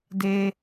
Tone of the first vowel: high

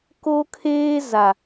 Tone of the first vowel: high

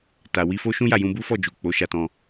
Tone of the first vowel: low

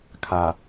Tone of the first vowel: low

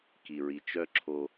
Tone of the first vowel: low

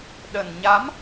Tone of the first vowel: low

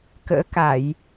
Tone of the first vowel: rising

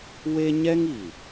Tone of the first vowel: high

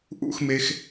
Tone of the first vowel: falling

